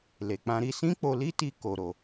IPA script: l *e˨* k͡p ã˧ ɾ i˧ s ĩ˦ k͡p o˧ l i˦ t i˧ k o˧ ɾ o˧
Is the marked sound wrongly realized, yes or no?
no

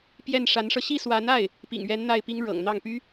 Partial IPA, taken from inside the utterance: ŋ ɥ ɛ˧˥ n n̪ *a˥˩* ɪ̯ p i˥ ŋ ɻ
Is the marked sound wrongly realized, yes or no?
no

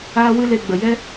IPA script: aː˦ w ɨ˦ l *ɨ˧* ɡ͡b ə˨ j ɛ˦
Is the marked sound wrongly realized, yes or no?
yes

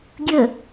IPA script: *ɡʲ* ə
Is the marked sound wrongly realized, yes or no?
no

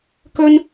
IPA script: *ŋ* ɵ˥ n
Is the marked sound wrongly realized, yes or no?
yes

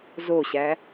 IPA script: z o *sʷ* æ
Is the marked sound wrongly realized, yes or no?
yes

